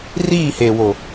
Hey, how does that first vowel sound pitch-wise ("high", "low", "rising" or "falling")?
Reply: falling